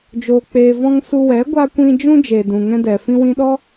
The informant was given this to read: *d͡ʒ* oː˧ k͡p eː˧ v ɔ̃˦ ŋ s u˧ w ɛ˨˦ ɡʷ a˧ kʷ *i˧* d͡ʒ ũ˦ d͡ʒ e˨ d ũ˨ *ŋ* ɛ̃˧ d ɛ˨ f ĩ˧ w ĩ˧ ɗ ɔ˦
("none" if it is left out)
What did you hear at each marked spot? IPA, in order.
d͡ʒ, ĩ˧, ŋ

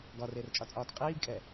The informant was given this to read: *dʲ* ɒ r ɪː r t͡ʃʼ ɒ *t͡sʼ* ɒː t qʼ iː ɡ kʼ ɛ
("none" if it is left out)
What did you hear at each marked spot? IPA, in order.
ɡ, t͡sʼ

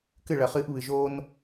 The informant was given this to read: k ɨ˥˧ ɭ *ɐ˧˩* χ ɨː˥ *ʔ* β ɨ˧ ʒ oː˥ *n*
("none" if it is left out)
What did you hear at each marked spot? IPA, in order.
ɐ˧, ʔ, n

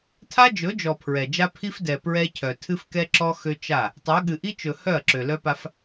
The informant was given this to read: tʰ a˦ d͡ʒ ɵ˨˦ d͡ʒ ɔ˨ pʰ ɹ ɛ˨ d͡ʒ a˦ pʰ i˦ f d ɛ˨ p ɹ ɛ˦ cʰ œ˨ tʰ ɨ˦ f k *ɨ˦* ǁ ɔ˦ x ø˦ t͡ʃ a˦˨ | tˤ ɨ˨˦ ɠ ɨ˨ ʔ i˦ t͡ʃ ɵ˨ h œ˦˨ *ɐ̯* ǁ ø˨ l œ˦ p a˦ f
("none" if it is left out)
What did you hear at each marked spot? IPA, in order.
ɛ˦, ɐ̯

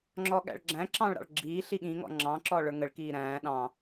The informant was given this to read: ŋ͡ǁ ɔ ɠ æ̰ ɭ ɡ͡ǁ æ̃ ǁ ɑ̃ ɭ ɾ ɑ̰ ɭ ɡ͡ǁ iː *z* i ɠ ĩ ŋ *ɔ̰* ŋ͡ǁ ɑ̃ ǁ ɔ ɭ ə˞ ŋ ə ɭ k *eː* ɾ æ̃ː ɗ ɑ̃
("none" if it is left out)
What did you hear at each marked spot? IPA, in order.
ɬ, ɔ̰, iː

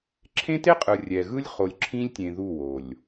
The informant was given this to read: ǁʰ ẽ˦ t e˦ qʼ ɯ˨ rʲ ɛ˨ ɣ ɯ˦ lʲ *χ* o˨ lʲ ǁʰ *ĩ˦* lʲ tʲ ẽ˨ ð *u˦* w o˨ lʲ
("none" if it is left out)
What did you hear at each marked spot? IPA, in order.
χ, ĩ˦, u˦˨

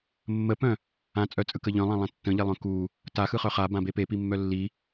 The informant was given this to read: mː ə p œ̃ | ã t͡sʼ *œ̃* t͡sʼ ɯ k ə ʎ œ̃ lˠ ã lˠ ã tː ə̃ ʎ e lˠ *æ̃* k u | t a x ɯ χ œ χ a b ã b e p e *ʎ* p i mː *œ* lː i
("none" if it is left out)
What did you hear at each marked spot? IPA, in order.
œ, œ̃, none, œ

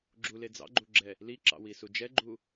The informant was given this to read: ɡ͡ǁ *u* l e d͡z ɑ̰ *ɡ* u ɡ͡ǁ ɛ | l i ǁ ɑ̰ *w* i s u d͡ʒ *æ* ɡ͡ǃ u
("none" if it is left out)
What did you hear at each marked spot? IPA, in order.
u, ɡ͡ǃ, w, ɛ

